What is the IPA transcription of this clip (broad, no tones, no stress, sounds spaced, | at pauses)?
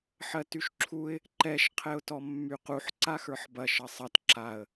ħ ɜ t y ʃ ǁʰ u ɪ̯ | ǃ ɛ ʃ qʰ ɛ ʊ̯ t ɔ mː y q u ħ ǀ a x ə˞ ħ b ɐ ʃ ɐ sˤ ɐ t ǁ a ə̯